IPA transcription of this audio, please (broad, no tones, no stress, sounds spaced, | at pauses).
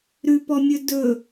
ɾ ʉ p ɔ mʲ ɵ d ɵ